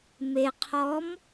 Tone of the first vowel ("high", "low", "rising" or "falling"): low